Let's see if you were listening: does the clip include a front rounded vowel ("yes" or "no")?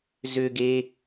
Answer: yes